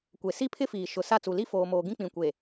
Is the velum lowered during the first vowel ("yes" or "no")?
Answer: no